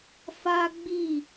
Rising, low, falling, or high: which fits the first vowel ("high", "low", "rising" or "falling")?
high